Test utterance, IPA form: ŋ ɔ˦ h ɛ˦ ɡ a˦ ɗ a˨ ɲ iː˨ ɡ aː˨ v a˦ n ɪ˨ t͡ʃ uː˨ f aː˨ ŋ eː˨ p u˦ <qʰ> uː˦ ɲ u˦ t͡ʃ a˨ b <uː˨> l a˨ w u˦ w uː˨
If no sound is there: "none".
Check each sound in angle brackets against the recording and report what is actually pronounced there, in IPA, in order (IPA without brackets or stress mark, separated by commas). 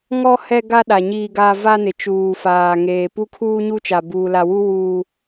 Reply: kʰ, uː˨